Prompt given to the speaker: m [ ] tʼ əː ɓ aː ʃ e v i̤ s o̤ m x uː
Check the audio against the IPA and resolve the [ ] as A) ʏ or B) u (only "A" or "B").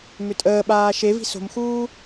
A